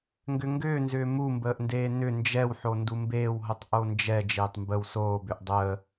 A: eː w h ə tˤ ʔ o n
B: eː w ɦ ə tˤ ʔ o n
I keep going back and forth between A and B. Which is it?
B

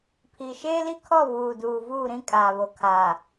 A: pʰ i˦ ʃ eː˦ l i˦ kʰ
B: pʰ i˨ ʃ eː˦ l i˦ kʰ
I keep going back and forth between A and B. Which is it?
B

